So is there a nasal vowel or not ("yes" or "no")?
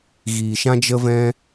yes